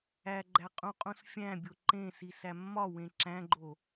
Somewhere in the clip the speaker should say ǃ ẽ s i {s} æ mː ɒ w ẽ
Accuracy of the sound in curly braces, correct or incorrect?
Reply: correct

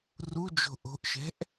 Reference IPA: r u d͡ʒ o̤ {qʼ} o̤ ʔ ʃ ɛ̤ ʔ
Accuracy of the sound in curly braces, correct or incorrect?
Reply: incorrect: ʔ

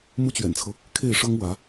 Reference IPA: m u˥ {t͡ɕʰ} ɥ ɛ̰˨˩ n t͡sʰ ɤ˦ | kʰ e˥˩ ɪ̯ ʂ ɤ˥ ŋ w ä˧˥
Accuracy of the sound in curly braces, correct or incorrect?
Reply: incorrect: t͡ɕ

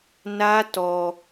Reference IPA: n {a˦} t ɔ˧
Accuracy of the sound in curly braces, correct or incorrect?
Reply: correct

